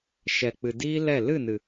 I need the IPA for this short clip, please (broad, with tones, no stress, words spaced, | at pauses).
ʃɛ˨k͡pɨ˨diː˦lɛ˦˨ lɨ˦˨nɨ˨